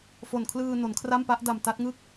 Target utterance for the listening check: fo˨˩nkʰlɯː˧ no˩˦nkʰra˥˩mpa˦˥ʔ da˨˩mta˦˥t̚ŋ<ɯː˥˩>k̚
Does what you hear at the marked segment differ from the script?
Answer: yes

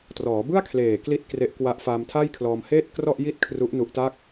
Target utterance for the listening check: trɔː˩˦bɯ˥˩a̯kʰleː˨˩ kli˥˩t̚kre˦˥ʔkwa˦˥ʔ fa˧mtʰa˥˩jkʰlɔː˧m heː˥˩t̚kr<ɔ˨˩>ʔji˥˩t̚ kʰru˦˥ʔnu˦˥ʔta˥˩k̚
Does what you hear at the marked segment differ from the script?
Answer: yes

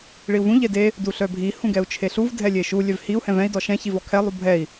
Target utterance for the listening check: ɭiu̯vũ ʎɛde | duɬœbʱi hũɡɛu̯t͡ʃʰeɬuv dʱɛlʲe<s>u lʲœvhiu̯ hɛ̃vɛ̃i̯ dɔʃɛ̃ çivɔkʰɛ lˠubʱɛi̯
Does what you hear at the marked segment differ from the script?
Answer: yes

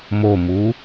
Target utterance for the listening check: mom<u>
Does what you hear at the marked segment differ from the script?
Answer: no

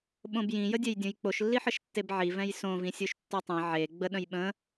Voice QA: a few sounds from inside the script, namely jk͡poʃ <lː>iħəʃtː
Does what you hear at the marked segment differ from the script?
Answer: no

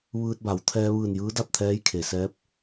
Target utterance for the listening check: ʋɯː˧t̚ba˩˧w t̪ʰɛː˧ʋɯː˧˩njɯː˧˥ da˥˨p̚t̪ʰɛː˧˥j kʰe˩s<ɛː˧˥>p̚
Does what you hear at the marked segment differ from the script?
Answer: no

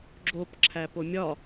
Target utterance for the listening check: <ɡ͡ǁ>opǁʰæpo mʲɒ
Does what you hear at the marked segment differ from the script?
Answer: no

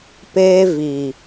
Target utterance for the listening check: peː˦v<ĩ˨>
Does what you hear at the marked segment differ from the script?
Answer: yes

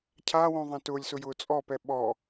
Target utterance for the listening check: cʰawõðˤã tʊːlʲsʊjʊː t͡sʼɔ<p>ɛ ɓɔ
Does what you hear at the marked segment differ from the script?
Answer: no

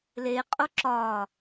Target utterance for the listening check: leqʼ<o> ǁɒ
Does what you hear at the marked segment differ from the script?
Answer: no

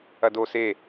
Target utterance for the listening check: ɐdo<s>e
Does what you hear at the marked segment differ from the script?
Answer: no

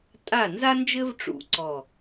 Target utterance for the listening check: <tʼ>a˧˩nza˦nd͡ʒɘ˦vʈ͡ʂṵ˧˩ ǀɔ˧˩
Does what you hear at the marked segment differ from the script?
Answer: no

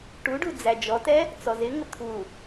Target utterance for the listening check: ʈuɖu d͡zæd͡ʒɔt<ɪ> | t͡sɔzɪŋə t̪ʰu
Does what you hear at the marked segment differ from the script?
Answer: yes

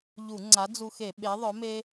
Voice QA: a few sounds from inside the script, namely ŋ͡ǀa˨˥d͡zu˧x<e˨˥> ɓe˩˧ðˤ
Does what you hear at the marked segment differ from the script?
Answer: yes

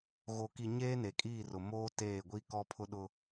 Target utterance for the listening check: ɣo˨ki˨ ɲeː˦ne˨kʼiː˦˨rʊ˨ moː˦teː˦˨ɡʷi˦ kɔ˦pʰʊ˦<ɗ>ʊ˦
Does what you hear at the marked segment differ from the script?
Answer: no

